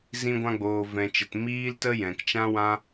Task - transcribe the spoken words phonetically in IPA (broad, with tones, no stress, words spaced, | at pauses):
zĩ˧ɡʷã˧ɡ͡boː˨ vɛ̃˨t͡ʃə˨t miː˦ltə˦ jɛ̃˨kt͡ʃã˦ wã˦